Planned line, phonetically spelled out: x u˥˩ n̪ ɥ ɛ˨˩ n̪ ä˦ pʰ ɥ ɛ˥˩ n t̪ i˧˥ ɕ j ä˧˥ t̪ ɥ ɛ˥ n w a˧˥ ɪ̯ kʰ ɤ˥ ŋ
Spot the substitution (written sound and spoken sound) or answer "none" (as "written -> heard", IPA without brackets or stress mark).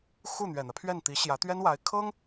none